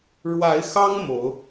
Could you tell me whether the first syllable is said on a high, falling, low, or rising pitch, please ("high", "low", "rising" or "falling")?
rising